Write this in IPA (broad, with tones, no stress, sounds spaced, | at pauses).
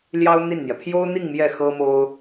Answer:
l j ɑ˥ ʊ̯ n̪ i˥˩ n n̪ j ɛ˩ pʰ j o˥ ʊ̯ n̪ i˥˧ ŋ m j ɛ˥˩ x ɤ˥ m o˥ ʊ̯